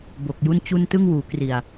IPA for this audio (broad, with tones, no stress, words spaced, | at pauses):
bo˨˩k̚ju˥˩nt͡ɕu˥˩n tɯ˥˩ŋwuː˩˦ kri˨˩a̯